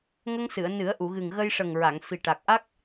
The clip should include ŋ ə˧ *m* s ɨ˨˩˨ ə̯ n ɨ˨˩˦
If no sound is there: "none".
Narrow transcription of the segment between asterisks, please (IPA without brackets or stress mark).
ŋ